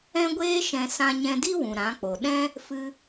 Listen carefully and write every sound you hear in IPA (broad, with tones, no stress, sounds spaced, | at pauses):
ɛ̃˧ ɡʷ eː˧ ʃ ɛ̃˨ s ã˧ ɲ ɛ̃˧ d i˦ w ũ˨ ɾ ã˨˦ k͡p o˨ ɗ ɛ̃˦ | f ɨ˧